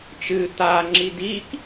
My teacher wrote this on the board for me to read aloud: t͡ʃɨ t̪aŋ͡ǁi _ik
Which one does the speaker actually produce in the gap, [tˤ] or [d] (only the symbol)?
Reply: d